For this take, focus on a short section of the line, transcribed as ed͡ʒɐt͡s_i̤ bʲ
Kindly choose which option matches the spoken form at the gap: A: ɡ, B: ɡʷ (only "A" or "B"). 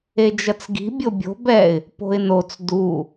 A